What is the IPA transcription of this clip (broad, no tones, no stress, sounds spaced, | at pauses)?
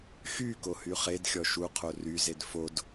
x y k o h y χ e d xʲ ɔ ʃ u qʰ o r y z e d f o d